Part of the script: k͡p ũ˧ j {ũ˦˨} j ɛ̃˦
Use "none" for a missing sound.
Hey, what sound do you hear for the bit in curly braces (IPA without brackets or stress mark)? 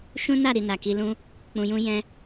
ũ˦